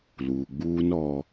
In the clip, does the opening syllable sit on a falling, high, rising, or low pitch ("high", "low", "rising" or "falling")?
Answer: low